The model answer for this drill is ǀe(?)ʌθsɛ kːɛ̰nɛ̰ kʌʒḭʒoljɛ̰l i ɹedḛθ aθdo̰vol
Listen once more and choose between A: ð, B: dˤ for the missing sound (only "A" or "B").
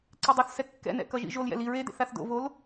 B